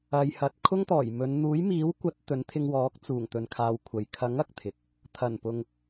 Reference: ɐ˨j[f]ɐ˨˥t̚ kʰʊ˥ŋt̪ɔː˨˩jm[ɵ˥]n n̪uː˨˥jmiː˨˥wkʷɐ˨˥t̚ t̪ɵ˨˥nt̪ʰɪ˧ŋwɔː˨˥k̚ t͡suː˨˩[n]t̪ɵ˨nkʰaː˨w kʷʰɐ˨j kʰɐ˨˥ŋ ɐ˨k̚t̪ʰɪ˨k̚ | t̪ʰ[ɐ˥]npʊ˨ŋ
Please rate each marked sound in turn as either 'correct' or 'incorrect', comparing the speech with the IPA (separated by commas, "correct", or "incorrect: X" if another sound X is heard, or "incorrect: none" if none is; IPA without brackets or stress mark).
incorrect: h, incorrect: ɵ˨˧, incorrect: ŋ, incorrect: ɐ˨˩